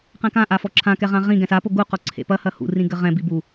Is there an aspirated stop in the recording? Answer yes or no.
yes